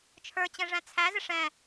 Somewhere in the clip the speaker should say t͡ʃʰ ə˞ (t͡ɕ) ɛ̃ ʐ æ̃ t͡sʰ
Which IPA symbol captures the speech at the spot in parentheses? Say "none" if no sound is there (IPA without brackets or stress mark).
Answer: t͡ɕ